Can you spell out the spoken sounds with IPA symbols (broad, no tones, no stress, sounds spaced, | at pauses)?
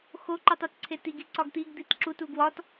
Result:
x o ǃ i tˤ o t ǀʰ e t i ɡ i ǀ ɒ ɡ t̪ i ɡ d̪ i t ǁ u t u ɡ w ɒ t